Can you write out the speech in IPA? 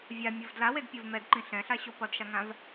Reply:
vʲ a mʲ o v d l a w e d pʲ u v m ɛ d ǃ ĩ ɬ ɛ̃ ɬ a ɕ o p ʌ d ʃ a ŋ ã v

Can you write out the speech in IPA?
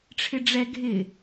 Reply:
ʈ͡ʂʰ ɪ ɖ͡ʐ ɛ ɡʱ ɪ

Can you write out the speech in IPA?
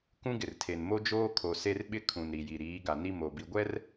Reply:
k ũ˦ ɡ ɪ˨ r tʰ e˨ n m o˦ d͡ʒ oː˦ kʰ o˨ s e˦ r ɓ ɪ˦ kʰ ũ˨ n ɾ i˨ j i˨ ɾ iː˨˦ ɡ a˨ n i˦ m o˨ b i˨ ɡʷ ɛ˦ r

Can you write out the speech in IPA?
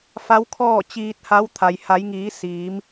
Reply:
f a˧˥ w kʰ ɔː˥˨ t͡ɕ iː˧ t̚ h a˧˥ w t̪ʰ a˩ j h a˩˧ j ŋ iː˩˧ s iː˩˧ m

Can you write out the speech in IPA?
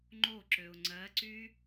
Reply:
ŋ͡ǃ o ǁ ø ʊ̯ ŋ͡ǀ ɜ ǀ y

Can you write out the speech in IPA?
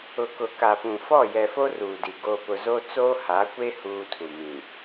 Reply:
ʊ˨ k ʊ˨ k a˨ p ũ˨ f ɔ˦˨ j ɛ˨ f o˦ r uː˨ d i˨ ɡ o˨ p ʊ˨ z o˦ t͡s oː˦ h a˨˦ kʷ e˦ h uː˦ tʰ u˨ m ĩ˨

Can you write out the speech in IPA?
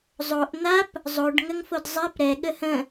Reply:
zˤ o ʔ n̪ a p | zˤ o ɖ ŋ ə ŋ f o d zˤ ɛ p ɾ ɛ ɠ ə h ə̃

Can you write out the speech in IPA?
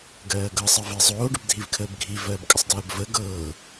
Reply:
ɡ ɜː ɡ ɤ sˤ ɜ v i zˤ oː ɖ ə b dʱ i v kʰ əː b ɡʱ i v ɜː b kʼ ə sˤ d ɜː b v ə ɡ ɤː

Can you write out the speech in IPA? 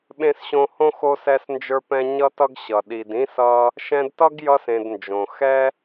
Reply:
ɓ ẽ˦ s ɕ õ˦ h õ˥ x o˦ s ɛ˦ s n d͡ʒ ə˞˦ p ɛ̃˦ ɲ ʌ˦ t ʌ˦ ɡ ɕ ʌ˩ ɗ i˨ d ĩ˥ s ʌ˦ | ʃ ɛ̃˦ d t ʌ˥ ɡ j ʌ˦ s ẽ˨ d n d͡ʒ õ˩ x ɛ˦

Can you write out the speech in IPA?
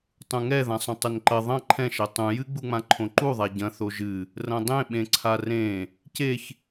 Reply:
tˤ ũ ŋ ɛ ð ã sˤ õ tˤ ɘ n ǃ ɐ ðˤ ɐ̃ ǃʰ ɛ̃ ʃ ɛ tˤ ũ j ɨ ɡ͡b u ŋ͡m ã ǃʰ õ ǃ u ðˤ a ɟ ɐ̃ θ o ʒ ɨ | r ɐ̃ dˤ ẽ ɓ ẽ ǀʰ a r ẽ | c e ç

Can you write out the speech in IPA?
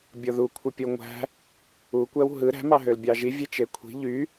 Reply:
bʲ o ð u kʷʰ ɯ pʲ o ŋʷ æ̤ | u kʷ æ w ɦ ɯ ɾ æ̤ m ɑ ɦ ø l bʲ ɑ ʒ i vʲ e t͡ʃ e kʷʰ i̤ ʎ y

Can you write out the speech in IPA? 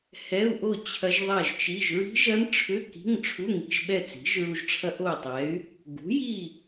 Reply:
h ɛ˧˥˧ u̯ ʔ o˥˨ t͡ɕʰ ɐ˦˥ ʒ ðˤ ɛ˥˨ ʒ t͡ʃ i˧˥˧ ʒ ɹ i̤˦˥ ʒ ɐ˦˥ n ʈ͡ʂʰ ʏ˧˥˧ k i̤˧˥˧ ŋ ʈ͡ʂʰ u˧˥˧ ŋ i̤˧ ʒ ɓ ɛ˥˨ t͡s i̤˩˥ ʒ ɹ u˧ ʒ ʈ͡ʂʰ ɐ˦˥ ʔ o˥˨ y̯ tˤ ɛ˩˥ y̯ | ɡ ṳ˩˥ j i˥˨

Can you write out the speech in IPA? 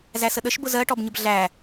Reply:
z æ s ə ɗ ə ʃ b ʊ z ɜ ʈ ɔ b ɲ ə b ɮ æ

